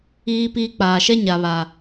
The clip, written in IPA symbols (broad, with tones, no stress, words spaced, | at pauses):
iː˦piː˦ k͡paː˨ʃɛ˦ ɲa˨βa˨